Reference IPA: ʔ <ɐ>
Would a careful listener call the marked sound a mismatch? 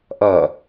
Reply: no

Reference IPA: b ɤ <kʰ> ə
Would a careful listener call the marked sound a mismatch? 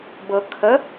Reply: no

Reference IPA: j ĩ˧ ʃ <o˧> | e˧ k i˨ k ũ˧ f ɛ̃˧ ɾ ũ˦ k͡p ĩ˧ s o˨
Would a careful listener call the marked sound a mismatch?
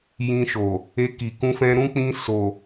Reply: yes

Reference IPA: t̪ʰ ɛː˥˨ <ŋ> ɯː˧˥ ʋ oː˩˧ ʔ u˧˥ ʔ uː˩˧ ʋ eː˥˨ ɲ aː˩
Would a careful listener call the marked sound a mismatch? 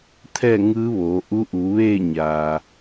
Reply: no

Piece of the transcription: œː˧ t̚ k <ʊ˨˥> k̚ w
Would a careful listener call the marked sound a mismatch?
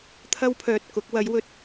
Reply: no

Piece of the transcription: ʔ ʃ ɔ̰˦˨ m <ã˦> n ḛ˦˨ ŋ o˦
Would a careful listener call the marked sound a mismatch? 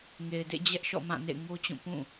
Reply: yes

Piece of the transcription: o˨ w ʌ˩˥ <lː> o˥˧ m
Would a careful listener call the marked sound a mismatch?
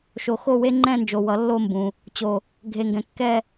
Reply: no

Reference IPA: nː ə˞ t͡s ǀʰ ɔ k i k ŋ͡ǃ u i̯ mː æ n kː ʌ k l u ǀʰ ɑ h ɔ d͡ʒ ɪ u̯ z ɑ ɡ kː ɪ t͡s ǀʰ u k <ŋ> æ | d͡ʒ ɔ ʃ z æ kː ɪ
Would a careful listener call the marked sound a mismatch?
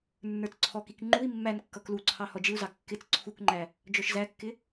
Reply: yes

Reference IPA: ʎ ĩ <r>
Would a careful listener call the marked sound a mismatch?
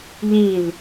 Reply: yes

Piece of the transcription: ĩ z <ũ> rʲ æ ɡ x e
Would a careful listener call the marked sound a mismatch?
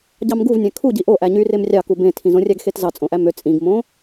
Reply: yes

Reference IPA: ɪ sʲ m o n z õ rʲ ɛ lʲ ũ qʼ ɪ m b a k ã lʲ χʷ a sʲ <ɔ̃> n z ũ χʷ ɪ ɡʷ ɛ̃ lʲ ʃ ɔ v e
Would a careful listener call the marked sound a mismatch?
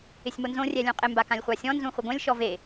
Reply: no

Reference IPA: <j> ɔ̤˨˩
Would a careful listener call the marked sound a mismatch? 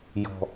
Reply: no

